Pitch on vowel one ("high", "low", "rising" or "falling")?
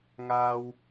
low